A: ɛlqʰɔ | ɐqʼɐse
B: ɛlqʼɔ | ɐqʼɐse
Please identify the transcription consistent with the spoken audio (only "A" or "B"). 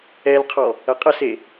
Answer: A